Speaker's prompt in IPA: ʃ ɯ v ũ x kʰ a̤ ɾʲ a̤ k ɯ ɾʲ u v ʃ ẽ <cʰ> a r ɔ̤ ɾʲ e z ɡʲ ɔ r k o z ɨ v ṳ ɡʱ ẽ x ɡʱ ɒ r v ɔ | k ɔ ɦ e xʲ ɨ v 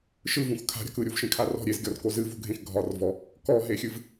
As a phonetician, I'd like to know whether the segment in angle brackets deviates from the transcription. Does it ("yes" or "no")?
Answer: yes